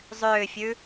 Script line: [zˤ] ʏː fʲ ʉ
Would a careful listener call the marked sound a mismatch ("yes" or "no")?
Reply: no